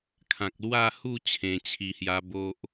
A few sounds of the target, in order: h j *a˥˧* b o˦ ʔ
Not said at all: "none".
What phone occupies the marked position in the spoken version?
a˧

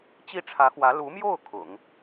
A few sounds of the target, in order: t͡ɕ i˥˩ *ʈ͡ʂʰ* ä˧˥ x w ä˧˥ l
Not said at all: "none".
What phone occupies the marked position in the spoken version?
ʈ͡ʂʰ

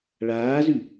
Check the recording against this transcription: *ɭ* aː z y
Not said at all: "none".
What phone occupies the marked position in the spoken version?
ɭ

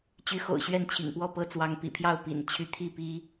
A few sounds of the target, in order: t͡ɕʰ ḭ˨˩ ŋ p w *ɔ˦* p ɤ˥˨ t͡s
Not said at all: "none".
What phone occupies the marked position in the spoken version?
ɔ˥˨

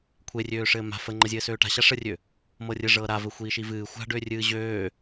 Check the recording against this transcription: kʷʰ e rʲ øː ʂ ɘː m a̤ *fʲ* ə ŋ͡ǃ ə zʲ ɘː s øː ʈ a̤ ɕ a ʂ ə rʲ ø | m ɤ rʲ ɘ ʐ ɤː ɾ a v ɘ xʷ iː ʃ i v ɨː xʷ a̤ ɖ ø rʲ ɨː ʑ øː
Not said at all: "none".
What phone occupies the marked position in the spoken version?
f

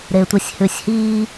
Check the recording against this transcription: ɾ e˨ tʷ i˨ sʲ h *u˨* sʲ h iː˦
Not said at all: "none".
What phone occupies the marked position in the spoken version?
ʉ˨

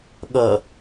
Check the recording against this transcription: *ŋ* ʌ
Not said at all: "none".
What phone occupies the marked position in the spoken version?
ɠ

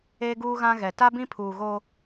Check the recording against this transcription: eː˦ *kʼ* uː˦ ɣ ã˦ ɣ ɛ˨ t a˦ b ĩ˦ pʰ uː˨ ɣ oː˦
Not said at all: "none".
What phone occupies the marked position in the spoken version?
ɡ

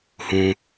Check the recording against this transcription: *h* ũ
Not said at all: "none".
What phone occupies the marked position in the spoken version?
h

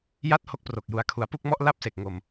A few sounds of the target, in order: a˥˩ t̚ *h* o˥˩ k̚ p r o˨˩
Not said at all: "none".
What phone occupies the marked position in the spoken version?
h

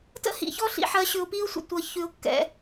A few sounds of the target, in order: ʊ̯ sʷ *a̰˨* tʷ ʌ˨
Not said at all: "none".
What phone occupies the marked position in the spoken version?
ə̰˨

